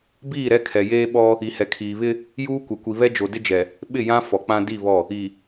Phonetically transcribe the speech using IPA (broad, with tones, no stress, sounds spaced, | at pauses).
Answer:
b iː˦˨ ɾ ɛ˦ kʰ ɛ˨ j eː˦ ɓ ɔ˦ | i˨ h ɛ˨ kʰ iː˨ β ɪ˦ | j uː˦ kʷ ɛ˨ kʷ i˨ β ɛ˦ d͡ʒ o˨ d ɪ˦ d͡ʒ ɛ˨ | ɓ ɪ˦˨ j ã˦ f ɔ˨ k͡p ã˦ d i˦˨ β ɔ˦˨ | i˨